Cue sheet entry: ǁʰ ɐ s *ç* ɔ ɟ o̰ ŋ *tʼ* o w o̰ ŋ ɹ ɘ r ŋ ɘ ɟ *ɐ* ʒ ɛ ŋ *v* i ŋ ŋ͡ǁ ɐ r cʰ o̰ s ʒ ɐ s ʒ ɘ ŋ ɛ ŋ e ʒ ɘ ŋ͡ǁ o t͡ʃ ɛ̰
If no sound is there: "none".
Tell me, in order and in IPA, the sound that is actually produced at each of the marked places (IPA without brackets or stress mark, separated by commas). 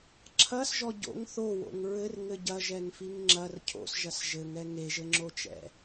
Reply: ʒ, θ, ɐ, f